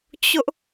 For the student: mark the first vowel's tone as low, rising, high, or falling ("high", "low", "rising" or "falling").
high